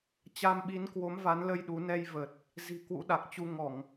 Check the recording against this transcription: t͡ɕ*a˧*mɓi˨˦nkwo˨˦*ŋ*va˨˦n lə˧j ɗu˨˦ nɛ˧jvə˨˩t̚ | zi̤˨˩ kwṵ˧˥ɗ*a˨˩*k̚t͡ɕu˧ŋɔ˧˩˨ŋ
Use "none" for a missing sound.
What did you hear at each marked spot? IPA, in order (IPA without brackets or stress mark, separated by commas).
a˧, m, a˨˩